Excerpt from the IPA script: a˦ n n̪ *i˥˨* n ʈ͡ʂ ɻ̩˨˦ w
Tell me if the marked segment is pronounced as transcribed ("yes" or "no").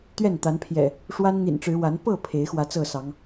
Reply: no